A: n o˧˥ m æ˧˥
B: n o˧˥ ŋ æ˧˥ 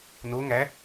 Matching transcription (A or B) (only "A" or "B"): B